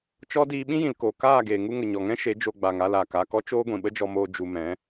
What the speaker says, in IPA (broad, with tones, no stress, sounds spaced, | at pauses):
t͡ʃ ɔ˦ d iː˧ ɓ ĩ˦ j ĩ˨ l k oː˨ k aː˦˨ ɡ eː˨ ŋ u˧ ŋ ə˨ ɲ ɔ˨ ŋ ɛ̃˦ ʃ e˨˦ d͡ʒ o˧ ɡ͡b a˨ ŋ a˦˨ l aː˨ k a˦˨ k ɔ˦ t͡ʃ oː˦ ɡʷ ĩ˨ ɓ ə˦ d͡ʒ ɔ˧ m oː˧ d͡ʒ u˧ m ɛ̃˨˦